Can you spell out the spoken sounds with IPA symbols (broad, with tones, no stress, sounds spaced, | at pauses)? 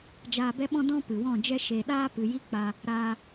d͡ʒ aː˧ b ɛ˦ ɓ ɔ̃˦ d ɔ̃˦ p ɨ˨ w ɔ̃˦˨ d͡ʒ ɛ˦ ʃ e˨ ɗ aː˦ p ɨ˨ j i˦ k͡p a˧ | ɾ aː˧